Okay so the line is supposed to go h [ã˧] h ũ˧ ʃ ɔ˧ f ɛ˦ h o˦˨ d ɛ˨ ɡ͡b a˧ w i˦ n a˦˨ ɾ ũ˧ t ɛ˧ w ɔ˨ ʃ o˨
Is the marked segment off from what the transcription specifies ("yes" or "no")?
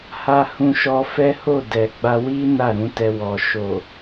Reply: yes